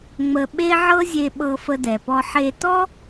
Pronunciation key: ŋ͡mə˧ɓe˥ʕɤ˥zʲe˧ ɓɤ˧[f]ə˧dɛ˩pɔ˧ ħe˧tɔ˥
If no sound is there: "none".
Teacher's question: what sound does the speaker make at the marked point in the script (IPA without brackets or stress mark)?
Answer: f